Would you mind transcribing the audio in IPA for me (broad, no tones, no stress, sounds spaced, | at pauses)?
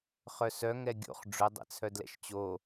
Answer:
χ œ s œ ŋ ɛ ɡʲ o̰ χ ɖ͡ʐ ʊ dˤ ɛ̰ t͡sʰ œ d l ɛ̰ ʃ t͡ɕ o